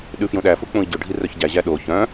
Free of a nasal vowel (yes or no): no